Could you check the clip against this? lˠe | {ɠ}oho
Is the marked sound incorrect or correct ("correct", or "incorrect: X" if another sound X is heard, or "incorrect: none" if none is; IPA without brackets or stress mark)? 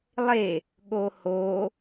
correct